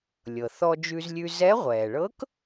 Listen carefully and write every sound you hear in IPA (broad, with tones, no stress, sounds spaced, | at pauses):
lʲ ɤ˩ θ ɔ˧ d͡ʒ ʉ˧ z lʲ ʉ˧ z ɛ˧˥ ʁʷ ɛː˩ ɭ ɤ˧˥ k